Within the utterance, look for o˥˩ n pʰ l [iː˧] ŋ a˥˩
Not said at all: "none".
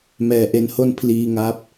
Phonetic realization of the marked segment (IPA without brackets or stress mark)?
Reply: iː˥˩